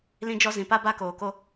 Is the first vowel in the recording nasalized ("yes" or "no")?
yes